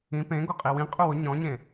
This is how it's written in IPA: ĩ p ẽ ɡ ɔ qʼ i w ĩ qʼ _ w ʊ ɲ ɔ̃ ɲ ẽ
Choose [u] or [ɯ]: u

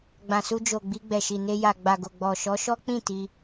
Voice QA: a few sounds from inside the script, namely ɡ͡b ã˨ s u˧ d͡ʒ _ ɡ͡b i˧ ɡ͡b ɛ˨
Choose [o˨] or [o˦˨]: o˨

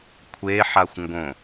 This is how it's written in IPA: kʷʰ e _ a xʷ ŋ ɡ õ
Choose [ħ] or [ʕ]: ħ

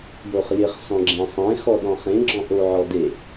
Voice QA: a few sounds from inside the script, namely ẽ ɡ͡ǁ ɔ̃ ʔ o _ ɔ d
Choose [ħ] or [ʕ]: ʕ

